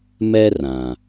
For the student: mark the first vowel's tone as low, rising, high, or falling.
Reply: high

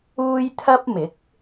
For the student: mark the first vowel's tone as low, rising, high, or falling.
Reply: high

